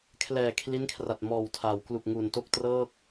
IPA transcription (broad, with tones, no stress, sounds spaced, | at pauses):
kʰ l ɛː˨˩ kʰ l i˦˥ n kʰ r a˨˩ t̚ m ɔː˨˩ w tʰ a˩˦ w k l u˨˩ k̚ ŋ u˨˩ n t o˥˩ k̚ t r ɤː˥˩ k̚